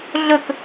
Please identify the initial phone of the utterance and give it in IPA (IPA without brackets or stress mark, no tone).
ɮ